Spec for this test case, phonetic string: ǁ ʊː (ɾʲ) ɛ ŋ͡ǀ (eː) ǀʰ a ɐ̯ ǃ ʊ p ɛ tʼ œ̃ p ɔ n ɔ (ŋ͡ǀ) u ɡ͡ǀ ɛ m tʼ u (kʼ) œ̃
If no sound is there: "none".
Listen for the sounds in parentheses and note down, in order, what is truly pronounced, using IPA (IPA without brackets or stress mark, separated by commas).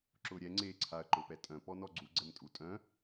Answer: ɾʲ, eː, ɡ͡ǀ, tʼ